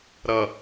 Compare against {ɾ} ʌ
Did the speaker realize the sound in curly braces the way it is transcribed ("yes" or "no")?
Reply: yes